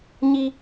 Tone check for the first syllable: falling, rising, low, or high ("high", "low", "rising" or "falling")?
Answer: high